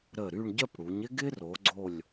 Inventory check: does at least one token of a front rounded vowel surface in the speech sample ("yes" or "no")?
yes